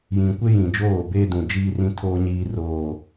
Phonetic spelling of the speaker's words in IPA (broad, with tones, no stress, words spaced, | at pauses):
jĩ˨kʷe˦jĩ˨d͡ʒoː˦˨ beː˦dũ˨ d͡ʒiː˦rĩ˦tʰoː˦ ɲiː˦roː˦